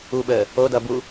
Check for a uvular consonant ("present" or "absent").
absent